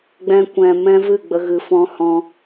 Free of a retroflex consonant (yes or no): yes